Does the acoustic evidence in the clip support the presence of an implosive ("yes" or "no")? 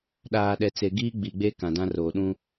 yes